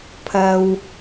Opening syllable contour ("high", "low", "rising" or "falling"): low